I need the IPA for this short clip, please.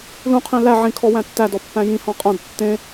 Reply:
l ũ qʰ ĩ l æ ʕ ĩ kʰ ɔ w æ̃ tː æ d ɔ pː æ̃ j ĩ h ɔ̃ qʼ ɐ̃ d tː ẽ

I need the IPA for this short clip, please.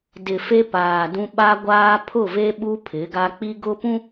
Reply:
d ɪ˨ f e˦ p aː˨ d ũ˦ ɓ a˦ ɡʷ aː˦ pʰ ʊ˦˨ v e˦ ɓ u˦ pʰ ɪ˨˦ ɡ a˦ k͡p i˦ ɡ ʊ˦ p ũ˦

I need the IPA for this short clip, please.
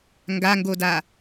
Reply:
ŋ ɡ a ŋ ɡ o d a

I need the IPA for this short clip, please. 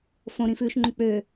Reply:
f õ ɾ ĩ f ʉː ʃ ŋ͡ǃ ũ k͡p ø

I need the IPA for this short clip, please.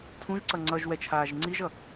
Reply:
tʰ ũ ʒ ǀ ʌ ŋ͡ǀ ʌ ʒ w ɛ t͡ʃʰ aː ʒ ŋ͡ǀ i ʒ ʌ

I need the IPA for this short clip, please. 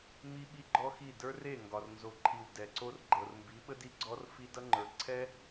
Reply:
m i˦ ɓ i˦ ɡ͡ǃ ɔ˦ x i˦˨ d ə˞˦ r e˦˨ ŋ ɡ ɒ˨ r n z o˨ ǃʰ i˨ w d ɛ˨ ǀ o˦ r ɡ͡ǃ ɤ˨ r m b i˨˦ ɓ ə˦ d i˧ ɡ͡ǀ ɔ˦ r f i˦ d ʌ˦ ŋ͡ǃ ə˞˨ ǀʰ ɛ˦

